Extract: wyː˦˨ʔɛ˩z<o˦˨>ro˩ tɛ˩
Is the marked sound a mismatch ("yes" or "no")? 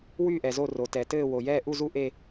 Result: no